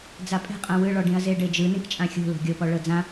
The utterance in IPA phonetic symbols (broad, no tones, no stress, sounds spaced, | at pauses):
d͡z a pʼ ɛ̤ qʼ ã w ɯ ɭ ɔ ɖ ĩ ɐ̯ z e ɖ e d͡ʒ ɯ n ĩ k t͡ʃʼ ã xʲ o̤ l o̤ ɡʲ o p ɔ ɭ ɤ d͡z ã